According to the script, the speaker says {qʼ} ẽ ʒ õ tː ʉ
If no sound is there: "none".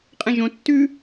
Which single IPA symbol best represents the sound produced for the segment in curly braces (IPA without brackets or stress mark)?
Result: qʼ